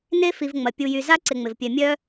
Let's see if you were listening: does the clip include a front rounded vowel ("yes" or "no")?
yes